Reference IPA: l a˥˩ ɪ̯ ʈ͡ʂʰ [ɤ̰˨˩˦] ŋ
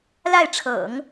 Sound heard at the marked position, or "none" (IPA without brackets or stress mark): ɤ̰˨˩˦